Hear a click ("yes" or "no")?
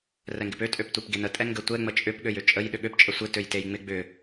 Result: no